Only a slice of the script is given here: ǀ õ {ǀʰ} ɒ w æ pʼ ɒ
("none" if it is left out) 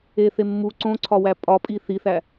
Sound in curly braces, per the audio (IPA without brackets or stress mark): ǀʰ